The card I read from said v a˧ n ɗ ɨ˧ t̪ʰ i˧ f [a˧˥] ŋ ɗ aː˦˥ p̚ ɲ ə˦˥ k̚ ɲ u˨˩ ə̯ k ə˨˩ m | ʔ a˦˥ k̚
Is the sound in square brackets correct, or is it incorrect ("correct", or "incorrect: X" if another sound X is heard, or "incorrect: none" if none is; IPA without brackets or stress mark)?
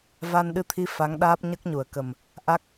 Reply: correct